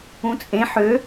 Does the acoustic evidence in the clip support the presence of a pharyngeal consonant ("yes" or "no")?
yes